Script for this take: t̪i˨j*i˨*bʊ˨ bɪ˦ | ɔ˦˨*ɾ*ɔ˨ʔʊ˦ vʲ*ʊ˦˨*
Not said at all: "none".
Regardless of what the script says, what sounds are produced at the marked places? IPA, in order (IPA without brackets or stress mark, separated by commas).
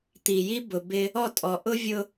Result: i˦, tʼ, ʊ˦